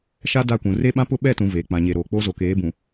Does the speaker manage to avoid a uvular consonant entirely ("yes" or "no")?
yes